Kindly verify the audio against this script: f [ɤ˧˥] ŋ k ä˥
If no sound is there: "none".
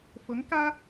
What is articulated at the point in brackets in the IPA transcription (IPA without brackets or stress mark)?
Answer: ɤ˧˥